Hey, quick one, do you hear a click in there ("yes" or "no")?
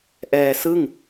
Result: no